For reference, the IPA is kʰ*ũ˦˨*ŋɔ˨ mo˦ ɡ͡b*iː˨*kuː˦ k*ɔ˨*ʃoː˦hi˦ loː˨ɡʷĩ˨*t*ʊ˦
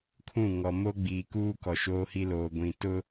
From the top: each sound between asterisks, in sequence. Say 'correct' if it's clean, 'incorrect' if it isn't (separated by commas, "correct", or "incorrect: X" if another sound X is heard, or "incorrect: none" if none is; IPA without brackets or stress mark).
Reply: correct, correct, correct, correct